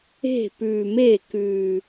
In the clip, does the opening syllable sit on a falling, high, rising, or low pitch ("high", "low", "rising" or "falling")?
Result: falling